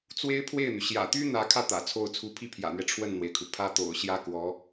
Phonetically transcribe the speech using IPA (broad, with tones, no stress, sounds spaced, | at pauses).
t͡s w e˥ ɪ̯ pʰ w e˥˩ ɪ̯ n̪ y˩ ɕ j ä̰˨˩ t̪ y˥ n̪ ä˧˥ kʰ ä˧ t̪ ä̰˨˩ t͡sʰ o˥˩ ʊ̯ t͡sʰ u˧˥ pʰ i˥ pʰ j ä̰˨˩ n̪ ɥ ɛ˦ ʈ͡ʂʰ w ə˥˩ n n̪ w e˩ ɪ̯ kʰ u˩ pʰ ä˥ t̪ o̰˨˩ ʊ̯ ɕ j ä˥ k w ɔ˧˥